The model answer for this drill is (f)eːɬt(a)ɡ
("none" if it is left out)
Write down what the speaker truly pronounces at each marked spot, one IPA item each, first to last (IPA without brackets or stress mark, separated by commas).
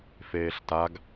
f, a